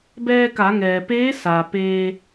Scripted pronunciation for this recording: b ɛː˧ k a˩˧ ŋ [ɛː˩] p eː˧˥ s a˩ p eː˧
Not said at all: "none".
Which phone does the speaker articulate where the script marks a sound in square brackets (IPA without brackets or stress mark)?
ɛː˩